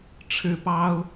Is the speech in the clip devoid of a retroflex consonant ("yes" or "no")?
no